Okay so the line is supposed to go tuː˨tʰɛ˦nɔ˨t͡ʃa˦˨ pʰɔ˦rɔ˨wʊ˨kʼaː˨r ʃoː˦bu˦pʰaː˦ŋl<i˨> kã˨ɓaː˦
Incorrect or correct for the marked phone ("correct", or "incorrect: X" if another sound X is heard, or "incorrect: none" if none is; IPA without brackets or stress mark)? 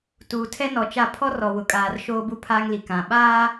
correct